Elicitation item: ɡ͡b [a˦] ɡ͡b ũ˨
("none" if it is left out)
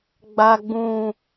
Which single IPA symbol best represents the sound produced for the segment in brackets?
a˨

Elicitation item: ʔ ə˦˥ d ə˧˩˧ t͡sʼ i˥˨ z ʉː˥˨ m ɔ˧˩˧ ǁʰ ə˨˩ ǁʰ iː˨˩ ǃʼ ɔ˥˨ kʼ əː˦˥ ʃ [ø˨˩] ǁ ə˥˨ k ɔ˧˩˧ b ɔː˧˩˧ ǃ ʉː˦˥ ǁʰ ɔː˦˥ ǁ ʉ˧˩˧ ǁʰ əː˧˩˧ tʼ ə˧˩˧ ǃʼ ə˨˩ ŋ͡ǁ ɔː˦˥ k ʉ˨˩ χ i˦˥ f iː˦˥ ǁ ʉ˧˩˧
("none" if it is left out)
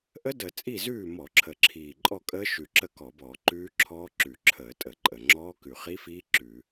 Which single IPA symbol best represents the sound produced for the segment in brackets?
ʉ˨˩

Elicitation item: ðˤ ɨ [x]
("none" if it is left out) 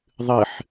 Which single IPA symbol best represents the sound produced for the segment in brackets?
ħ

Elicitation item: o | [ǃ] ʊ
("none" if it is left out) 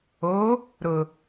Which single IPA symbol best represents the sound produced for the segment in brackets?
ɾ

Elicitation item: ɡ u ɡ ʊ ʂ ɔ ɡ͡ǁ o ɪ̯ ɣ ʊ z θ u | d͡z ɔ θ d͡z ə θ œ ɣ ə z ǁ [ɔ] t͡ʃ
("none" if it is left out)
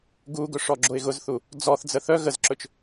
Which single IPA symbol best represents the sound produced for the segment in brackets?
ɵ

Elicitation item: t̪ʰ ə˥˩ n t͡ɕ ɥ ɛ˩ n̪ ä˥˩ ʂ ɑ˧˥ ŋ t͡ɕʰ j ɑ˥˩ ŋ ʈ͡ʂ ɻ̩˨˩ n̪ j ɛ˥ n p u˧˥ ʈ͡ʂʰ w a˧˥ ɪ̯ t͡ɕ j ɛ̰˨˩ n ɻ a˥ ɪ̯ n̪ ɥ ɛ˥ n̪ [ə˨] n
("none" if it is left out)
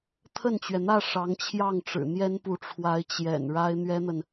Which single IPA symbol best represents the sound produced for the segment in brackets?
ə˨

